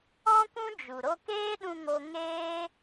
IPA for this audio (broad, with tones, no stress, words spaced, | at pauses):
ɔ̃˦kʷũ˦ d͡ʒu˨ ɾo˧keː˦ɗũ˧ ŋo˦ ŋeː˦